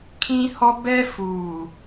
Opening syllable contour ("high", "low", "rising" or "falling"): high